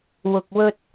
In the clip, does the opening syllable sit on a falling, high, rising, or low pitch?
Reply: low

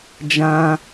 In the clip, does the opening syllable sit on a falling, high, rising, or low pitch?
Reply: high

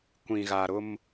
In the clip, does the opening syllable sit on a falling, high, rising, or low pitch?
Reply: low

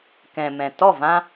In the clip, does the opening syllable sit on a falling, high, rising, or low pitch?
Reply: low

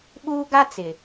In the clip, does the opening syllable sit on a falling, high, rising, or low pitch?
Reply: high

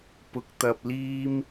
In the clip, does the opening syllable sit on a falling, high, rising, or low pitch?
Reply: rising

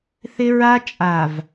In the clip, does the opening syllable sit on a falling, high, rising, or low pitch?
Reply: high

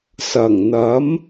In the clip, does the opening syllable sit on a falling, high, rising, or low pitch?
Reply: low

